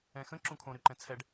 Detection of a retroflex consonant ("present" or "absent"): present